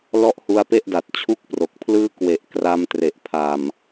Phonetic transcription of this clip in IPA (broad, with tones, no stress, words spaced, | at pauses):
lɔ˦˥ʔhu˧a̯pe˦˥ʔda˨˩t̚ t͡ɕʰu˥˩k̚pro˨˩k̚pʰlɯː˥˩ kwe˨˩ʔkra˧m tre˨˩ʔpʰa˨˩m